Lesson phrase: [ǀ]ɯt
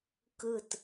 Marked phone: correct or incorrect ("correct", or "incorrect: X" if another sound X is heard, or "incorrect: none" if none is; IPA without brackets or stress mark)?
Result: incorrect: k